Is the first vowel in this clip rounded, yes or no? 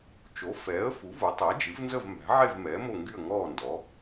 yes